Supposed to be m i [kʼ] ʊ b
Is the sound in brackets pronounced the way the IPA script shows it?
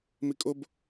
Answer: yes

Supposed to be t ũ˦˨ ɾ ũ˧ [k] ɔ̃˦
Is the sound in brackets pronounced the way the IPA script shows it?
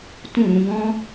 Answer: no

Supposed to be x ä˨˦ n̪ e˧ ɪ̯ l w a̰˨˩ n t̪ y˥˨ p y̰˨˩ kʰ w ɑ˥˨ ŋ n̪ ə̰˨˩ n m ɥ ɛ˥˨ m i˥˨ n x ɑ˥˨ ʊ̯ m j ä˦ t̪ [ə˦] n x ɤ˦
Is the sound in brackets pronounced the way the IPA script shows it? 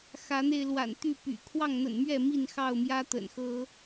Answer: no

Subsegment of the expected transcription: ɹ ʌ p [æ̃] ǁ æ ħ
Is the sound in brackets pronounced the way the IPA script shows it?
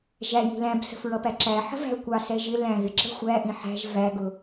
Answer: no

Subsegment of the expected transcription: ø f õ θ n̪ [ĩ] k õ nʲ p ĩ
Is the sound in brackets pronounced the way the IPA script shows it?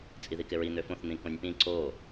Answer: yes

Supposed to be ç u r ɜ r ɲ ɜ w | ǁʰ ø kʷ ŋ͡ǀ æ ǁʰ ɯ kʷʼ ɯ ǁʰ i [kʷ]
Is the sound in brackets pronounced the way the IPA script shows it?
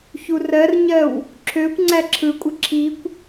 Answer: yes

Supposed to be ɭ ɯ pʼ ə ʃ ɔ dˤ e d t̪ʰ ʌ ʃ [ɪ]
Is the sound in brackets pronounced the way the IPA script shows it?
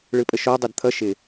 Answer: yes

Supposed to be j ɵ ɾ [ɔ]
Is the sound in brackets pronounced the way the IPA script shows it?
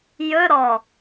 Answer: yes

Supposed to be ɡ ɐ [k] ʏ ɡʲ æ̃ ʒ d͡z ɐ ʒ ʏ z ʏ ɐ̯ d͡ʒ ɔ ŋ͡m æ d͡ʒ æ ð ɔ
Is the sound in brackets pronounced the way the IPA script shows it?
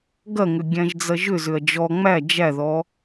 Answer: no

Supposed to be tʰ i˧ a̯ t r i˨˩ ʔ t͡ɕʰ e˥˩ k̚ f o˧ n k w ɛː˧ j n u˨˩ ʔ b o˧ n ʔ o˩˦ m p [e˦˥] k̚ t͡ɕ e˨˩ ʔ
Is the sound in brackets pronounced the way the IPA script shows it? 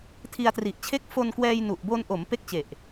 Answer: no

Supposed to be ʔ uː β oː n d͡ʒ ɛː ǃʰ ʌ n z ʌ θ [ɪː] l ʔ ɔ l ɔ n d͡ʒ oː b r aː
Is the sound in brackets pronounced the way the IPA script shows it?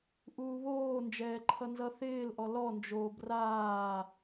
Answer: yes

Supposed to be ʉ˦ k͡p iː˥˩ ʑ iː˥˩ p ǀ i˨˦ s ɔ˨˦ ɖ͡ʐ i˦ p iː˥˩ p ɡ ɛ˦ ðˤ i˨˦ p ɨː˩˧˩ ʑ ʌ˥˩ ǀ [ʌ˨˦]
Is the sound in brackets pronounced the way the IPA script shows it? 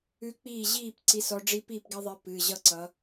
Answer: yes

